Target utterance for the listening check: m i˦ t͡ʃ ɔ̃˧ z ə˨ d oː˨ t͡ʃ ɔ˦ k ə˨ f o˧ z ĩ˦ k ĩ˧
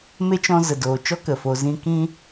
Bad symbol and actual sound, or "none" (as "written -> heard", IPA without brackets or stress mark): i˦ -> e˦